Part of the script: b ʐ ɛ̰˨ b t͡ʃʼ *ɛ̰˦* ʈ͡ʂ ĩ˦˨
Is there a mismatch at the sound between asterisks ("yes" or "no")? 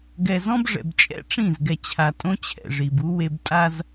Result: no